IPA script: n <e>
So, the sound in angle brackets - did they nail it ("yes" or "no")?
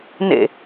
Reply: no